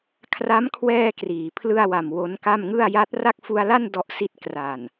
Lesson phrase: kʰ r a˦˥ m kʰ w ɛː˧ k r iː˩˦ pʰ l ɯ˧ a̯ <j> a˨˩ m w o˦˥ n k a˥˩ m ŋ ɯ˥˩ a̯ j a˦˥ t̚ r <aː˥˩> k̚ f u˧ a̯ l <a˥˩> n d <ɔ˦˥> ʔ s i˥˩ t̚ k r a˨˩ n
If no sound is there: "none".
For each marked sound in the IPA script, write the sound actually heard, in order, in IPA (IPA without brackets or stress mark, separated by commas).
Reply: w, a˥˩, a˥˩, ɔ˦˥